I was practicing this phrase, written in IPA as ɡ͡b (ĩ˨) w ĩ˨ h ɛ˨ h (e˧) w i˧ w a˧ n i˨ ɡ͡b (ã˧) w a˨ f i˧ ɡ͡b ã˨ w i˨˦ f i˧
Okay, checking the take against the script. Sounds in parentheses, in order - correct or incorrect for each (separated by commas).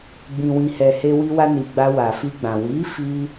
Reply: correct, correct, incorrect